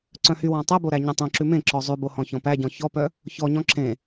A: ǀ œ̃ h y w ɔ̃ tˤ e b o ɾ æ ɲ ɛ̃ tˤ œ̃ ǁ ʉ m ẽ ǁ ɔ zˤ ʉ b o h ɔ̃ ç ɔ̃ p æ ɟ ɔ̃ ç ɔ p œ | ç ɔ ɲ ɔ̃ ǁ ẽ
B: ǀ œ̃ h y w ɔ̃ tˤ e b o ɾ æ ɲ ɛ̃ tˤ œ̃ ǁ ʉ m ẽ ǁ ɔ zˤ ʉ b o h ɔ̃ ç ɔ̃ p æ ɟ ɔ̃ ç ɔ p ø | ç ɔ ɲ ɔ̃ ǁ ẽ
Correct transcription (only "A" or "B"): A